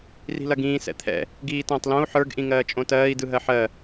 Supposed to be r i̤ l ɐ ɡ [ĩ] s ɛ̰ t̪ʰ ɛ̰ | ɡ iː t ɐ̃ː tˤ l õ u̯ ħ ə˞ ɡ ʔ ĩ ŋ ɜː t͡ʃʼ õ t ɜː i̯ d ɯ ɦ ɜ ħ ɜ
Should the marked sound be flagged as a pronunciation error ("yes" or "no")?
yes